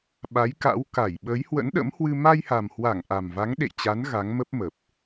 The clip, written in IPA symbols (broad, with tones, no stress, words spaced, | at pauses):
ɓa˨˦jka̰˧˥w ka˧˩jɓə˨˦j hwə̰˧˥nɗə̰˧˥mhwɨ˧ ma˧jha˨˩mhwa˧˩ŋ ʔa˨˩mva˨˦ŋɗḛ˧˨jt͡ɕa˨˦n ɣa˨˦ŋmə˦˥p̚mə˨˩p̚